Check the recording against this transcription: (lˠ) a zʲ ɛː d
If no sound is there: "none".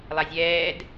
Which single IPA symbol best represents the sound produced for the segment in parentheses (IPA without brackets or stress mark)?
lˠ